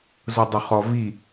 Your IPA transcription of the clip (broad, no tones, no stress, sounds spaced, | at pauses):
z ʊ dˤ ʊ χ ɔ v i